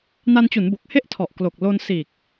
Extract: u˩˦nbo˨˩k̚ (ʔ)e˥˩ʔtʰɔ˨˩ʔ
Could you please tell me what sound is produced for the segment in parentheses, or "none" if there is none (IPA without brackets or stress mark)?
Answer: h